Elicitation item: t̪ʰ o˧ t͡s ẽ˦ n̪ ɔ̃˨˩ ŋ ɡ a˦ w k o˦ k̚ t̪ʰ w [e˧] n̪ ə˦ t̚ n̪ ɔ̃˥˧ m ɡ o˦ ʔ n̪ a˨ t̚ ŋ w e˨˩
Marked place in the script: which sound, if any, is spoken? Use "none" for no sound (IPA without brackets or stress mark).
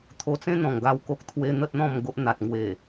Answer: e˦